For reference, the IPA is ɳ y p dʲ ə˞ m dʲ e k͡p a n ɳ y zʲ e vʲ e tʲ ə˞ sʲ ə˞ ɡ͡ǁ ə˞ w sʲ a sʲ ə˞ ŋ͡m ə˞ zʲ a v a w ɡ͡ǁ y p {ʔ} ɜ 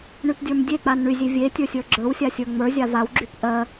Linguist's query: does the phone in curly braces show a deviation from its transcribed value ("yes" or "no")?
no